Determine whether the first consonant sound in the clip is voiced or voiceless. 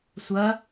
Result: voiceless